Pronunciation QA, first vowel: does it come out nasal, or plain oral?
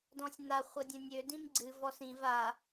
nasal